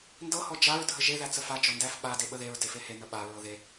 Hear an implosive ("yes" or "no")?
yes